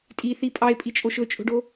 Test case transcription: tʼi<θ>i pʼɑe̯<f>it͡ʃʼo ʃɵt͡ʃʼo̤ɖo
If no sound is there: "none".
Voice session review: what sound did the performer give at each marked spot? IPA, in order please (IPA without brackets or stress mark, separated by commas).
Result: θ, pʼ